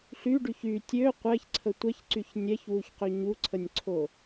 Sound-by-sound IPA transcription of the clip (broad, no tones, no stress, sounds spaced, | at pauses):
ɬ y ɖ y ç y tʲ ø qʷ ɛ ç ǀʰ ə tʷ ɛ ç ǀ y ç nʲ ɛ ç w u ç q ø ɲ u ǀʰ ə nʲ ǀʰ o